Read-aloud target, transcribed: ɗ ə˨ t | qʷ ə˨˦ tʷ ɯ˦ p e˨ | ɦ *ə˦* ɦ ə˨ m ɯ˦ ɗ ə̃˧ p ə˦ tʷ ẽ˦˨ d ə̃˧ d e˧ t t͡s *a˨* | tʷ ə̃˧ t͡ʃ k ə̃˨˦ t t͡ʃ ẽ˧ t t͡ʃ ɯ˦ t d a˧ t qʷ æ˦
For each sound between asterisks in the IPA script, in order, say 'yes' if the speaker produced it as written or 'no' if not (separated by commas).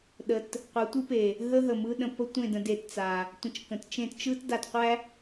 yes, yes